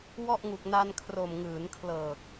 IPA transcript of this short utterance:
w ɔ˥˩ ʔ ŋ u˨˩ k̚ n a˧ n kʰ r o˨˩ m ŋ ɯː˩˦ n kʰ l ɤː˨˩ k̚

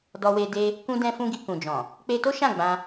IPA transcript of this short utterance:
d ɔ˧ w e˧ d e˧ | k ũ˧ d ɛ̃˧ f ũ˦ ɡ i˧ k ũ˨ d͡ʒ ɔ̃˨ | k͡p e˧ t o˦ ʃ ã˦˨ ɡ͡b ã˧

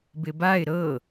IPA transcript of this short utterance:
b ɪ b a ɪ̯ ɾ ɤ

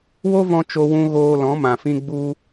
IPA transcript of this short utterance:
w o˦ v ɔ̃˧ t͡ʃ o˧ w ũ˧ ɣ oː˧ l ɔ̃˨˦ m ã˨ f ĩ˧ ɡ͡b u˧

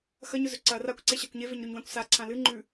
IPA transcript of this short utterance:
x ɐ ɲ ɵ z ɵ ǀ ɐ r a kʷ ǀ e ɕ a kʷ ɲ e v e ɲ ɾ ʉ ɲ w ã kʷ s a ǀʰ ã l ɨ ŋ͡ǃ ʉ

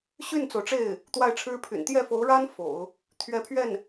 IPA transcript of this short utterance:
ɕ y˥˩ n t͡s o˩ ʊ̯ ʈ͡ʂ e˥˩ ɪ̯ | t̪ w a˥˩ ɪ̯ ʈ͡ʂʰ ɻ̩˥ pʰ y̰˨˩ n t̪ j ɛ˥˩ f o˧˥ ʊ̯ ɻ a˥ n f o̰˨˩˦ ʊ̯ | t̪ʰ ɥ ɛ˧˥ pʰ ɥ ɛ˥˩ n

